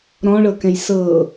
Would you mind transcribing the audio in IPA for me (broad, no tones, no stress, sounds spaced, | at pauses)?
ɾ ɔ̃ ɭ ɤ k ɛ̃ j s ɤ